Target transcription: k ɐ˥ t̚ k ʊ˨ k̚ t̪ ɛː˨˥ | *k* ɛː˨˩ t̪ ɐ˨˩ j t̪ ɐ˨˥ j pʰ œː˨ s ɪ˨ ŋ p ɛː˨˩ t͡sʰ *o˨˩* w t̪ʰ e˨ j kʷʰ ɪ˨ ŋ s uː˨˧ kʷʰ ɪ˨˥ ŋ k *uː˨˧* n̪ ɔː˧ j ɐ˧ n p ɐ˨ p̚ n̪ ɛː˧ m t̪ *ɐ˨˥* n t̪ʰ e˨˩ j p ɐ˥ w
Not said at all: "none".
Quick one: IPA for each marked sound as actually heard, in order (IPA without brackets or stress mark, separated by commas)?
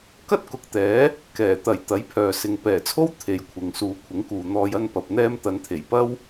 k, o˥, uː˨, ɐ˨˧